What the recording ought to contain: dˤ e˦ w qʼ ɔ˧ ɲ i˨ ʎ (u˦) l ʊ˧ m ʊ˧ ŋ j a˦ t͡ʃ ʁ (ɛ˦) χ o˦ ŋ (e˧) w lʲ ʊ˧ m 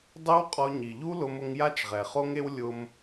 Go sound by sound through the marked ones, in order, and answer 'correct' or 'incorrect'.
correct, incorrect, incorrect

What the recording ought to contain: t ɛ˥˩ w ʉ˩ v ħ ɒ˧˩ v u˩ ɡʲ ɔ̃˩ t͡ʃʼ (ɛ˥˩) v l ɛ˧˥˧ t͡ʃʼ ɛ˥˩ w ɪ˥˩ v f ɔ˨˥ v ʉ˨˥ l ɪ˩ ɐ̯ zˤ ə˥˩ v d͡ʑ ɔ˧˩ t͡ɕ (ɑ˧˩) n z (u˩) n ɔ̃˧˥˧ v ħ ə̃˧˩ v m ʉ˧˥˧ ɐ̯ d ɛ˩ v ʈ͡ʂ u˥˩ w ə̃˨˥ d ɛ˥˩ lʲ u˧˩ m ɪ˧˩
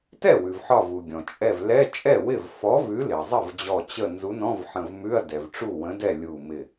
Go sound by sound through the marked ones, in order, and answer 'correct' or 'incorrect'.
incorrect, incorrect, incorrect

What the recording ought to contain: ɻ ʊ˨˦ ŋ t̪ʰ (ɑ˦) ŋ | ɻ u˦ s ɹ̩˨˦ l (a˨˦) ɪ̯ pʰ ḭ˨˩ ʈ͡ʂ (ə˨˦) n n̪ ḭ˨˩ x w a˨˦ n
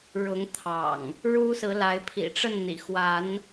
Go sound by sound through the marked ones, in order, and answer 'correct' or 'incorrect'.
incorrect, correct, incorrect

